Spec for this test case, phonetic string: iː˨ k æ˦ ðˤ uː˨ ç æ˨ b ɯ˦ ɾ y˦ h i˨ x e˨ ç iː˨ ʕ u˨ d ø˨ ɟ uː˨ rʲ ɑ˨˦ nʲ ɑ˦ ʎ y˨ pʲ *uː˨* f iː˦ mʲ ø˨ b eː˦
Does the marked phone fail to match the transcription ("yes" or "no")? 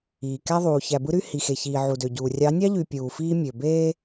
no